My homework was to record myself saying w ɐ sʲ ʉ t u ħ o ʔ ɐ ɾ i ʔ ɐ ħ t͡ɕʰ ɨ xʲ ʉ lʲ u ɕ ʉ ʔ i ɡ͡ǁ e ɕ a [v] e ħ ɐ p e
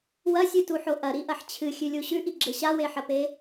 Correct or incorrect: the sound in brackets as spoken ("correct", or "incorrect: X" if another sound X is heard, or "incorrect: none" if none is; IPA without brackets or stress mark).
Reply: incorrect: w